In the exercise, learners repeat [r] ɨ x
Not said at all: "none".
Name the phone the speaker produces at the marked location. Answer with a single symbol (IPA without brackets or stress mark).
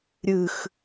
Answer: ɾʲ